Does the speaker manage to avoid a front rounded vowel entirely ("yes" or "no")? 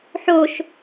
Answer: yes